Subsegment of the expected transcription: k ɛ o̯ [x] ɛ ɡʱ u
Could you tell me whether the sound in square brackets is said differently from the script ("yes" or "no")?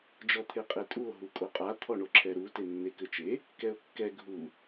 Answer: yes